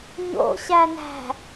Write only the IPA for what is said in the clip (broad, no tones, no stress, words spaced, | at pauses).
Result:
ɲo̰ ɕænæ̤